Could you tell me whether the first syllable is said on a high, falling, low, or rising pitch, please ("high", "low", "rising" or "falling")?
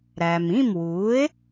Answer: low